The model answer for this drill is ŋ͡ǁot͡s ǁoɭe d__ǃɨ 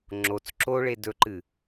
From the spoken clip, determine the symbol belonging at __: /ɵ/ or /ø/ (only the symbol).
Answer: ɵ